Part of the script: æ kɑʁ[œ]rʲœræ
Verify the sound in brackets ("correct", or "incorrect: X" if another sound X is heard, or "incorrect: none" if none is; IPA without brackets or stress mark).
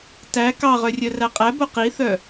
correct